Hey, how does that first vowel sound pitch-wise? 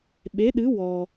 rising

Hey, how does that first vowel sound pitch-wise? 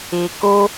low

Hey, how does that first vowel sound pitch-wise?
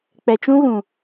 low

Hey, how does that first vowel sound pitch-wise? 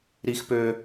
high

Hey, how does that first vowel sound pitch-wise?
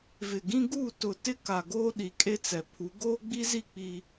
low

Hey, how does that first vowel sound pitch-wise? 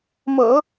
low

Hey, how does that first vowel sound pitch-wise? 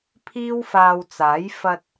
high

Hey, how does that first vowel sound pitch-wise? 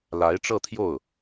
rising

